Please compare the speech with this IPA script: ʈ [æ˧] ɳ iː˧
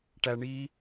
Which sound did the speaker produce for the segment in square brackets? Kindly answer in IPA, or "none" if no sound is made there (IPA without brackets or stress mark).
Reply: æ˧